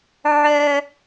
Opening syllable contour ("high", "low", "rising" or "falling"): high